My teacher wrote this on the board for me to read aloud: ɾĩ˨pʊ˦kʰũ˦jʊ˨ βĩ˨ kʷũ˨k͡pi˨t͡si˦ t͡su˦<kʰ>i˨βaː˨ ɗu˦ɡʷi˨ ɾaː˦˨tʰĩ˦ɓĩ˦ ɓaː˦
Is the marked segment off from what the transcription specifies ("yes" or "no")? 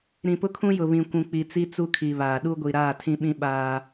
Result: no